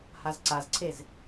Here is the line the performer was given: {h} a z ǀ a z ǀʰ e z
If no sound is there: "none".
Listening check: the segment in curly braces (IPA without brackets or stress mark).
h